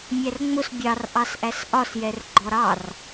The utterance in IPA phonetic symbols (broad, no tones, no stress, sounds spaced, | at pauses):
mʲ æ r ŋ͡m ʊ s bʲ ɑ r ʔ ɑ s ʔ æ s ʔ ɒ s j ɛ r ɡ͡ǃ ɔ ɾ ɑ r